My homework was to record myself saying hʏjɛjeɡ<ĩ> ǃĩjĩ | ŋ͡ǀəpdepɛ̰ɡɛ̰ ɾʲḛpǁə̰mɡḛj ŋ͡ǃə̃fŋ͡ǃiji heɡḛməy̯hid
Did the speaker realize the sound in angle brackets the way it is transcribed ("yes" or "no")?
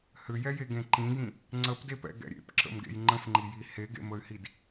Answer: no